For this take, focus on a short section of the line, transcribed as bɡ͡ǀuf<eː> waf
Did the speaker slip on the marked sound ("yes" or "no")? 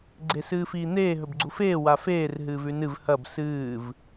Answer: no